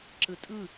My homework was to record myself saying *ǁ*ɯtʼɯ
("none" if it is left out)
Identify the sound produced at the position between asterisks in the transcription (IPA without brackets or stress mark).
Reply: ǁ